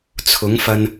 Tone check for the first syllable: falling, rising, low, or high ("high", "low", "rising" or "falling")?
rising